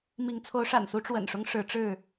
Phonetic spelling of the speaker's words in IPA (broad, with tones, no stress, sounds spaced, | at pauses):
m i˨˦ ŋ t͡sʰ o˨˦ ʊ̯ ʂ a̰˨˩ n s u˨˦ ʈ͡ʂ w ə̰˨˩ n ʂ ʊ˦ ŋ ʂ ɻ̩˨˦ ʈ͡ʂ ɻ̩˥˨